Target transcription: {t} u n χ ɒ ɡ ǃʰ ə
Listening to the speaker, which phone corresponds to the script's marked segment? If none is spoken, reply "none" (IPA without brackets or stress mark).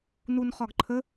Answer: n